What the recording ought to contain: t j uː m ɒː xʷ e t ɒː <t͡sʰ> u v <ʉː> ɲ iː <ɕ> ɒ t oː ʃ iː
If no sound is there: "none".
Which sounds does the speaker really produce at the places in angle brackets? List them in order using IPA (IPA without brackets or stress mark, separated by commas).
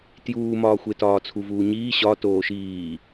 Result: t͡sʰ, uː, ɕ